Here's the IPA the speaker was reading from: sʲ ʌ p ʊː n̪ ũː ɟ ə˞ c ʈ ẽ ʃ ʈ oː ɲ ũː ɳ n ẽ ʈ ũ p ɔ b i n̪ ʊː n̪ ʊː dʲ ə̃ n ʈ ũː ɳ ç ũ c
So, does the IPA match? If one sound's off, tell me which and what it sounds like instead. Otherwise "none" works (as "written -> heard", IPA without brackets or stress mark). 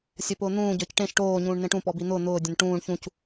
none